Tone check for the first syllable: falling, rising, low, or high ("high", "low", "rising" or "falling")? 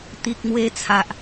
low